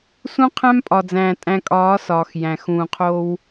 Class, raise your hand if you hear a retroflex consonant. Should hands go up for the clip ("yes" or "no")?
no